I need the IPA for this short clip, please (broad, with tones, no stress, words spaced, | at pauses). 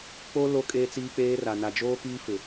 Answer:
k͡po˦ lo˦ kʼeː˦t͡siː˦k͡peː˦ra˨ na˨d͡ʒoː˦kiː˦fɪ˨